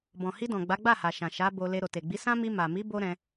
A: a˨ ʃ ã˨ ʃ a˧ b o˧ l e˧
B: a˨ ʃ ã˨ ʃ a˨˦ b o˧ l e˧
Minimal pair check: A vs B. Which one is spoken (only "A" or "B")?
B